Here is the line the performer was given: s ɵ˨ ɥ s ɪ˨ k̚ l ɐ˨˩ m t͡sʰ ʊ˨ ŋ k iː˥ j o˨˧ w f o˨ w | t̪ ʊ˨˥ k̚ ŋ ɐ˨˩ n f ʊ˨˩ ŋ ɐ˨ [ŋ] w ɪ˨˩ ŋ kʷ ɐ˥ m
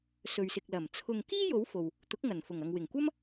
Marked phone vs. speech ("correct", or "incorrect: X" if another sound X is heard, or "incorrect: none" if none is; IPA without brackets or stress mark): correct